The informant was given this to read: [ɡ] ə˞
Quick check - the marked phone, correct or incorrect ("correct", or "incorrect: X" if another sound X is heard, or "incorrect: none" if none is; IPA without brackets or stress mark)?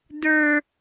incorrect: d